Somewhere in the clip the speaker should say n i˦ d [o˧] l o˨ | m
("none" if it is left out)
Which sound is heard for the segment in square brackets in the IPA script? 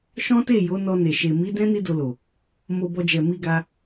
o˧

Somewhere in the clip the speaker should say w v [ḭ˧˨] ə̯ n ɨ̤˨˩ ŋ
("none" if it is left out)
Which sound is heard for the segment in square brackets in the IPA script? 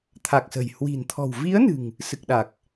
i˨˦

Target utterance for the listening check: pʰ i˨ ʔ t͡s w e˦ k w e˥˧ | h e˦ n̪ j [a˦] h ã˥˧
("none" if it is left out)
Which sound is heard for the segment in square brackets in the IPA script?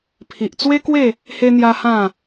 a˦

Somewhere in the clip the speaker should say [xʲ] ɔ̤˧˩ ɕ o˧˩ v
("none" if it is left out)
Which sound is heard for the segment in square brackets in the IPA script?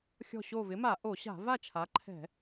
xʲ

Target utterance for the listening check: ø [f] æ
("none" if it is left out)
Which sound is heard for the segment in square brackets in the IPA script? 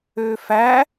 f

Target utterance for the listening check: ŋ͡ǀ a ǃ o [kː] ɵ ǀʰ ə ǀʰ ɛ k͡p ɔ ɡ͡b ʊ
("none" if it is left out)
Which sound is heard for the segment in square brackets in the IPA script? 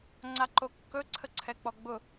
kː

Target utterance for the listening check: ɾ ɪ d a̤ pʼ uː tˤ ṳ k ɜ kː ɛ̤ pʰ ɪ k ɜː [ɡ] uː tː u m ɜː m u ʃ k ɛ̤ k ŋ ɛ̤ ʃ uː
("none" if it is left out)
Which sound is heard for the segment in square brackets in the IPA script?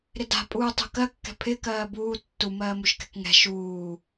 b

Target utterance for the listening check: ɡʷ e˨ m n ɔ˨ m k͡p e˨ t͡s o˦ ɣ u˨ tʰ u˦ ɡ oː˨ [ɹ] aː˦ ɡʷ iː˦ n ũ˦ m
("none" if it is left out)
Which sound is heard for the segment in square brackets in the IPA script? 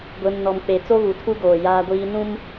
j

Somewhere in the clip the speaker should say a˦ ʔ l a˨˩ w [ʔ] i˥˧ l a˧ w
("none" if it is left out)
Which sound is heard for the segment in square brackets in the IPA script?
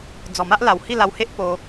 h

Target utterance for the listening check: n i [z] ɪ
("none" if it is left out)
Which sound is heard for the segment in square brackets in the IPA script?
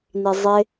zˤ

